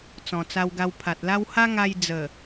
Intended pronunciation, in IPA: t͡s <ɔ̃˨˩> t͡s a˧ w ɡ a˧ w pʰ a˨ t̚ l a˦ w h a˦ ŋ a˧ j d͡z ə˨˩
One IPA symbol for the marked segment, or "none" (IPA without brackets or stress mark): ɔ̃˨˩